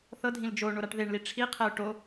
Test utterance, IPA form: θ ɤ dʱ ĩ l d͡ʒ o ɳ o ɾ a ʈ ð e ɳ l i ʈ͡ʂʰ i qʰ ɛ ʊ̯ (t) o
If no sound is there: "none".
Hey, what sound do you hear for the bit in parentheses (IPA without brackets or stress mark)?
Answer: ʈ